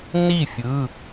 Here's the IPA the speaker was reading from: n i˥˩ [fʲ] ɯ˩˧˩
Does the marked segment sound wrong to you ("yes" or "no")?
no